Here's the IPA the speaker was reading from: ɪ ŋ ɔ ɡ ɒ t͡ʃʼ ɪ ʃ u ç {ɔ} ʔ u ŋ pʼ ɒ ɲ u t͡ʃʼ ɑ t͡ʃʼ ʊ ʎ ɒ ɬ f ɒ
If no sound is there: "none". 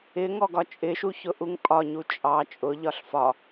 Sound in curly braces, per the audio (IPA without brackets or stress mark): ʊ